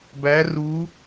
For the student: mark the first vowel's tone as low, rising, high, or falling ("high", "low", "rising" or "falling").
rising